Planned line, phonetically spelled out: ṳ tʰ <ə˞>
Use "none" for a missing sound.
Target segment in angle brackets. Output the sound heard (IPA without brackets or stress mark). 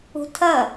ɐ